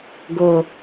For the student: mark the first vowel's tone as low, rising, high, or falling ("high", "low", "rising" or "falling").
falling